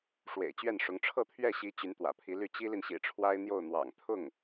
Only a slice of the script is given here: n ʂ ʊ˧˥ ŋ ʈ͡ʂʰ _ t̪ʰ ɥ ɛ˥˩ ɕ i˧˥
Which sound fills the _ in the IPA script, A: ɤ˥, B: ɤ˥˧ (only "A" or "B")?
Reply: B